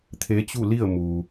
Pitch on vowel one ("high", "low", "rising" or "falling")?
rising